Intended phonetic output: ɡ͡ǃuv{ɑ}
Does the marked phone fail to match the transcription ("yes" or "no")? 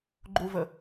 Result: yes